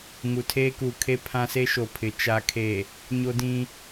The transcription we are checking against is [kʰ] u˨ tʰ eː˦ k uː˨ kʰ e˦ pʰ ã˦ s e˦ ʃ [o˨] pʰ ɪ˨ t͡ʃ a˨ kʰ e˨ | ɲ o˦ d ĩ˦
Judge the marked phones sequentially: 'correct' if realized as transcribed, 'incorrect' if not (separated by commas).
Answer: incorrect, correct